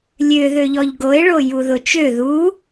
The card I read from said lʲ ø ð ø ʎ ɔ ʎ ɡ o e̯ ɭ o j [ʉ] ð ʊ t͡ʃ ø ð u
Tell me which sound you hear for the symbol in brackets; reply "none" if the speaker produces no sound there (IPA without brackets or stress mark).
u